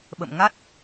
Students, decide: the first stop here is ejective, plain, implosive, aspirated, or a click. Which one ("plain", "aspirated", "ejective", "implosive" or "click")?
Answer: implosive